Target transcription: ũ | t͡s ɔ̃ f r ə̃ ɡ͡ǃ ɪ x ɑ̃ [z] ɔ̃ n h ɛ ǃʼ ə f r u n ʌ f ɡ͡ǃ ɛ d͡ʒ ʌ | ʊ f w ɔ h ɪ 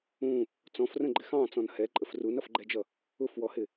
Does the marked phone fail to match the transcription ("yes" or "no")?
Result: yes